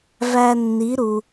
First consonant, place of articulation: labial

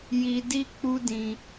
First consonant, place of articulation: palatal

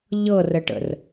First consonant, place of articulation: palatal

